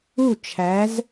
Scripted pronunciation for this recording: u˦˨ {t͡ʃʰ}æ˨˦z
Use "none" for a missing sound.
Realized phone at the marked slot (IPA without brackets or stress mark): t͡ʃʰ